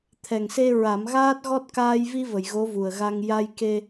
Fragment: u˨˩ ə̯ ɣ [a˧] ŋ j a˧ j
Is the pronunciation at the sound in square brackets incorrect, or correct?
correct